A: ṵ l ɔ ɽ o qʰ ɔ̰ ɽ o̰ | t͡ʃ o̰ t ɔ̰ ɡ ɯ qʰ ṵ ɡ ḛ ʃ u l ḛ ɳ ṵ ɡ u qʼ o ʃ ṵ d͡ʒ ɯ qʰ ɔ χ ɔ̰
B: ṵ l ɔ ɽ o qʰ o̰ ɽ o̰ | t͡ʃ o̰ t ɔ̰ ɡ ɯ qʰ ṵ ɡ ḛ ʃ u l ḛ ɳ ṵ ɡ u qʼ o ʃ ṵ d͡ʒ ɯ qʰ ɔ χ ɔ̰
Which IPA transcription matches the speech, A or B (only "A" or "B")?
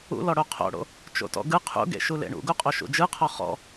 B